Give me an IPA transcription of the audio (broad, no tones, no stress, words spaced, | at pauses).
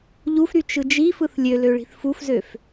ʎufɾy t͡ʃɯd͡ʒifɯθ lʲølø ɭi̤θfufzøf